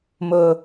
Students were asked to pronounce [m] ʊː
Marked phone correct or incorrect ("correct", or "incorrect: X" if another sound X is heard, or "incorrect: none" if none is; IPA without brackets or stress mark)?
correct